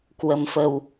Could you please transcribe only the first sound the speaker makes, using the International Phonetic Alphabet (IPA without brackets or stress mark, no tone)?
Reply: k